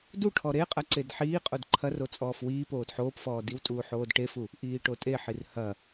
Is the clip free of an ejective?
no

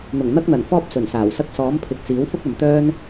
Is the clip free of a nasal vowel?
yes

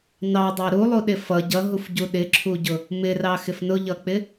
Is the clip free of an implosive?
no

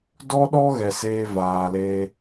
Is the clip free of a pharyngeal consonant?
yes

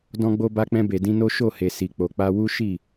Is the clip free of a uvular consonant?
yes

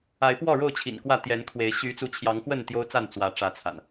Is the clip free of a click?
yes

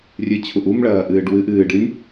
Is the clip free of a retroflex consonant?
no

